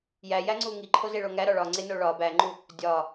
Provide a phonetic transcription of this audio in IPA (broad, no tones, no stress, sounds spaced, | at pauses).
j æ j æ ŋ͡ǀ u ŋ i ǃʰ o z e ɭ o ŋ æ ɾ ɒ ɭ ɒ ŋ͡ǀ e n o ɭ ɒ b æ ŋ͡ǃ u | dʲ ɒ